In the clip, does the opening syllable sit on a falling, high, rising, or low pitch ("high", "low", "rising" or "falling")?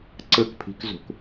falling